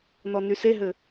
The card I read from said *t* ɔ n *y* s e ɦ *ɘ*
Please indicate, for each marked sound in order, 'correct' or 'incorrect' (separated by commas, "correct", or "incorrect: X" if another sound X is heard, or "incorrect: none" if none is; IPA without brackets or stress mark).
incorrect: n, correct, correct